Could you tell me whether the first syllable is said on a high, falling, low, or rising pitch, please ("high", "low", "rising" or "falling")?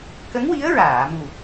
rising